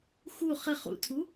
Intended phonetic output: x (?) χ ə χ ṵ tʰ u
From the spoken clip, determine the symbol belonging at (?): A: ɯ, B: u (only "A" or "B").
B